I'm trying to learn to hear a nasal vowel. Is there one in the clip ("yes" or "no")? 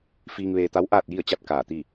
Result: no